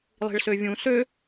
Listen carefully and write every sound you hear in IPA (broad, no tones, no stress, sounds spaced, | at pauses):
lˠ i̤ ɭ s ø vʲ ũ s ø